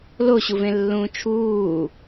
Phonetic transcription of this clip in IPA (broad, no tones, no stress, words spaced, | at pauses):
loɕuvẽlːũː t͡ʃʰuː